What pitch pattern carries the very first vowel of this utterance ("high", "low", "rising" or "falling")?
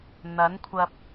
rising